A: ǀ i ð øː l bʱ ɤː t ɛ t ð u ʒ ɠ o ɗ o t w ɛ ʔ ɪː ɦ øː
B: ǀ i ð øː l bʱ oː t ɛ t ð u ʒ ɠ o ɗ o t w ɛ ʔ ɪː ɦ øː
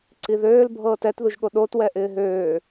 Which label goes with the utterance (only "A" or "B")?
A